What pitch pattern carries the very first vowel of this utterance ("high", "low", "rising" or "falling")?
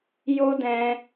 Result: high